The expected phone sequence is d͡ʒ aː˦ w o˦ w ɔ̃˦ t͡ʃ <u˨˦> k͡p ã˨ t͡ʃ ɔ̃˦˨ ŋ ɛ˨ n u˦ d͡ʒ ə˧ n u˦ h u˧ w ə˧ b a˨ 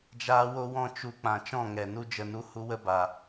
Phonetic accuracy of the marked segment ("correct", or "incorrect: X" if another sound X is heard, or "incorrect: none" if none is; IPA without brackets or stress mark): incorrect: u˧